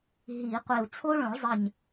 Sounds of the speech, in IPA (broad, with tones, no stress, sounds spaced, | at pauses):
ɦ i˨˩˦ qʷ e˧˩ u̯ t͡sʰ o˥ ɭ õ˨˩˦ ɭ zˤ ə˧˩ ɲ